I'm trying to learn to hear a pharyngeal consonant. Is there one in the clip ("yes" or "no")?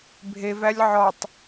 yes